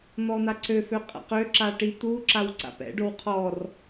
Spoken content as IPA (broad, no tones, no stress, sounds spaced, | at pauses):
n̪ ɔ n̪ a ǀ ø f ø qʼ a̰ q ø ǁ a ʈ i t̪ u ǁ a w ǀ a̰ p ɛ̰ ɖ o w qʰ ɔ r